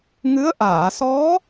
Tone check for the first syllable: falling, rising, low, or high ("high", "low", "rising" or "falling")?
rising